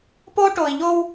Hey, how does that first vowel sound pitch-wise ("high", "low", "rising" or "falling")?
high